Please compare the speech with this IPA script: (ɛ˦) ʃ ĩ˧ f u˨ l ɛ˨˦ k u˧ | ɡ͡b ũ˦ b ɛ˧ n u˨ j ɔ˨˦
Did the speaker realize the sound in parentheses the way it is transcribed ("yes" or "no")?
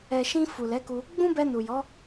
no